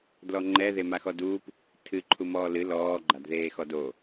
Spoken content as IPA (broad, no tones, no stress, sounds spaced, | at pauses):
d l ɔ ŋ͡ǃ ɛ ð e m a x ɔ d uː p | tʰ ɨ ǃʰ u m ɔː l ɨ l ɔː ɡ͡ǃ a d ð eː x ɔ d o